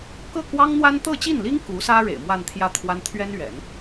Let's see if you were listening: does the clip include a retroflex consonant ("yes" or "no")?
yes